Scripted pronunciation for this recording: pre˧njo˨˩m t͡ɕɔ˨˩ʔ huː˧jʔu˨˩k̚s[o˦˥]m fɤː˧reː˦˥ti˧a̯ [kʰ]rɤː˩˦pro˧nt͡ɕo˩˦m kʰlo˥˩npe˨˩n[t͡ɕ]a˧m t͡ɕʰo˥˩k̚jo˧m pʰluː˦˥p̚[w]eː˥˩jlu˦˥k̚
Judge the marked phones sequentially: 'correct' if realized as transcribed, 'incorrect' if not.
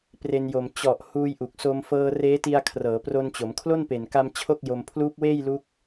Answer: incorrect, correct, incorrect, correct

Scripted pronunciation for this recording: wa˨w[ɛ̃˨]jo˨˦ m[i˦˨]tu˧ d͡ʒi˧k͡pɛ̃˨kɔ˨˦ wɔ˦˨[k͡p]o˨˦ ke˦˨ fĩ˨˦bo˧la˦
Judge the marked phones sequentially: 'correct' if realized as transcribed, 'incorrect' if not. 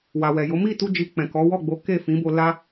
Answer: incorrect, correct, incorrect

